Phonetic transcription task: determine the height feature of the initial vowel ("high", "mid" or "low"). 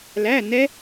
low